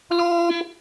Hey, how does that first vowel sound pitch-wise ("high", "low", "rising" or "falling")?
high